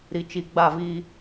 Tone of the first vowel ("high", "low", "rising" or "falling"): low